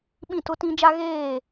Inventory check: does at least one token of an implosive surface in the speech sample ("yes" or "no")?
yes